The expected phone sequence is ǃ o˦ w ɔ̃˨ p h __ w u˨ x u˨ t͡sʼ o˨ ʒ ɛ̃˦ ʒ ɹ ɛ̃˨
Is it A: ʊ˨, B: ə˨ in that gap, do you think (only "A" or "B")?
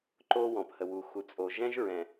B